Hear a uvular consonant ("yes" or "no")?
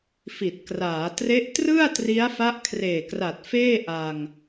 no